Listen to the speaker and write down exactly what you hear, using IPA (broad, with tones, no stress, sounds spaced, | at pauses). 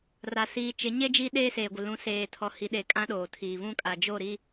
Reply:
r a˨ s iː˨ t͡ʃ ɪ˨˦ ɲ e˦ d͡ʒ iː˦ ɗ eː˦ s eː˨ ɡʷ ɪ˨ l ũ˨˦ s eː˨ tʰ ɔ˨ h i˨ ɗ e˨˦ kʼ ã˦ ɗ oː˨ tʰ iː˨ β ũ˦ kʼ a˨ d͡ʒ o˦˨ ɾ i˦